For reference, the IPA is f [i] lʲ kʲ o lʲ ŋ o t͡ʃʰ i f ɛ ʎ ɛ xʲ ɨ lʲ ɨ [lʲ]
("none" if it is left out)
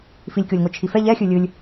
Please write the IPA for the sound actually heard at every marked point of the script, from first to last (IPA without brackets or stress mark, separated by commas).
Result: i, lʲ